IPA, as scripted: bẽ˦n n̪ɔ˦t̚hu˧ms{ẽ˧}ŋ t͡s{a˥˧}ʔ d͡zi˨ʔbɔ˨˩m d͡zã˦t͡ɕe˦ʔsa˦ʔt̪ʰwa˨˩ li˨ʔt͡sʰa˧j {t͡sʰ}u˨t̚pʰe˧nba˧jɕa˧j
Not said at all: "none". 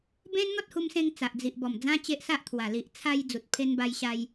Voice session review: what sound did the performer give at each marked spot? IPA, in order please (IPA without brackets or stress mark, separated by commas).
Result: ẽ˧, a˨, d͡z